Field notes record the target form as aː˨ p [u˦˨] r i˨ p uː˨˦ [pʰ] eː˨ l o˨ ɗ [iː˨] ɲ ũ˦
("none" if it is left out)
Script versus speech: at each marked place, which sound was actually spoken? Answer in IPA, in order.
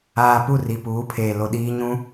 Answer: u˦˨, pʰ, iː˦

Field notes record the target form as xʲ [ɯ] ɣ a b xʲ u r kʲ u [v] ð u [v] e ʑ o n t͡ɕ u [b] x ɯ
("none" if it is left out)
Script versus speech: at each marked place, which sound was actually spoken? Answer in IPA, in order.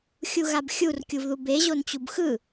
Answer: u, v, b, b

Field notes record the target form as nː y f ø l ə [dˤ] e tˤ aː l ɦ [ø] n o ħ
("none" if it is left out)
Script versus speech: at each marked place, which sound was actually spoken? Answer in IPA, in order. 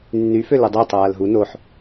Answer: dˤ, u

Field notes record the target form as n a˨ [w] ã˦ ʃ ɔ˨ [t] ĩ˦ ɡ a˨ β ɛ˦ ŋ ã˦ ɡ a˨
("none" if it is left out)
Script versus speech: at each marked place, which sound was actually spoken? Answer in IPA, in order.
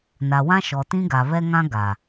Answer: w, t

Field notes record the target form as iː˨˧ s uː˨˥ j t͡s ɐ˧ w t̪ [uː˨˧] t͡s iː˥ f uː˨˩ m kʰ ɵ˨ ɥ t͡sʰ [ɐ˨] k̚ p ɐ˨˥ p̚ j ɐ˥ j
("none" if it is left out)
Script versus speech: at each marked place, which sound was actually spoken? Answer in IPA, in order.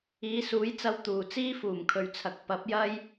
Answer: uː˨, ɐ˨

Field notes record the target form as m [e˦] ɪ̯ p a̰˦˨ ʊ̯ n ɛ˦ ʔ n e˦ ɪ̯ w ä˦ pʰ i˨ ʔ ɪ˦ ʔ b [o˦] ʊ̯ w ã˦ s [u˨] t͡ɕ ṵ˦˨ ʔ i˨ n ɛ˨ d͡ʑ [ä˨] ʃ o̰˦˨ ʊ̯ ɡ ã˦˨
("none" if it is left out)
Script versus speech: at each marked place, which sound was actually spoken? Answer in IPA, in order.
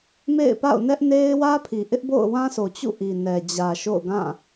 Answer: ḛ˦˨, o̰˦˨, o˨, ä˨

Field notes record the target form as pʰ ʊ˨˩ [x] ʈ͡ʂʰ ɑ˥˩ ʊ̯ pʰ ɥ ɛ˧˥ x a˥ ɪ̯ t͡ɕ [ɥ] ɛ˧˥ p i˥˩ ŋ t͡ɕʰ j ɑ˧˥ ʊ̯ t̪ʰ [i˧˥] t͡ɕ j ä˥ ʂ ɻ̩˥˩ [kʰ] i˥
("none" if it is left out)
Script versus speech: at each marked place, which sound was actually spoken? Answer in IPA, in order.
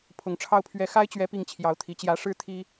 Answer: ŋ, ɥ, i˧˥, t̪ʰ

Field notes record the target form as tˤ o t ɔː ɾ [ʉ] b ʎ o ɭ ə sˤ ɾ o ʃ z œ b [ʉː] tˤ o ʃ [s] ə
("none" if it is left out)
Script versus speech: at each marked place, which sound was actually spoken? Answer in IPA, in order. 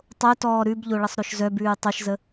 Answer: ʉ, ʉː, z

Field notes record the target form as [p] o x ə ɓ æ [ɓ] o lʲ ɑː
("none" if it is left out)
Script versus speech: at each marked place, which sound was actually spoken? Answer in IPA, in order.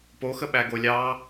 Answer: p, ɡ

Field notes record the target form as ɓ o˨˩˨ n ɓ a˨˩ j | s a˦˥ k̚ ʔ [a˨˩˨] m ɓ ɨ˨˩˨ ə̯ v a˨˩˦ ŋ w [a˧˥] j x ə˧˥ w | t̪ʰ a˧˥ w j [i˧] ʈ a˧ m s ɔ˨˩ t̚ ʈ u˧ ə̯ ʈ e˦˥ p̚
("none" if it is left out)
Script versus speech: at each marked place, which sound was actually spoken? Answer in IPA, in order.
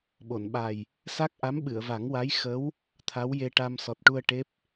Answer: a˧˥, a˧˥, e˧

